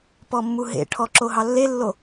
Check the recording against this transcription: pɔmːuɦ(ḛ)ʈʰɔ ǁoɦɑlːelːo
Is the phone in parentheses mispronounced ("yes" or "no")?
no